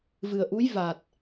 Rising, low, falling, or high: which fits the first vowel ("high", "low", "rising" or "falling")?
low